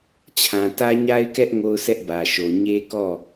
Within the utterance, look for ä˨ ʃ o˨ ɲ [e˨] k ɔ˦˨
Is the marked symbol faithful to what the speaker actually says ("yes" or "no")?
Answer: no